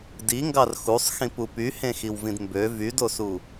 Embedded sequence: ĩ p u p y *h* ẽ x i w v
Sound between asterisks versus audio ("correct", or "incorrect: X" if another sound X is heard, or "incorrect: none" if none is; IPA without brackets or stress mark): correct